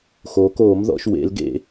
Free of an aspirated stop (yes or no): yes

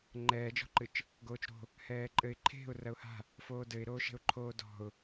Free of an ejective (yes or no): no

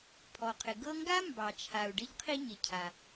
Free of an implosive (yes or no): yes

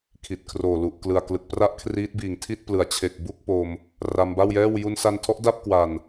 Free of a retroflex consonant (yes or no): yes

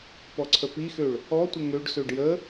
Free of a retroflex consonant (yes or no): no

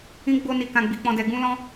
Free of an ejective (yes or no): yes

